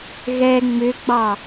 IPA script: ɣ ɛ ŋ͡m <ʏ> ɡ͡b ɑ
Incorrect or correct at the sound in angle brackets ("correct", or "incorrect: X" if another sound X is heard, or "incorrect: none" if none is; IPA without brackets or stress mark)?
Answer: correct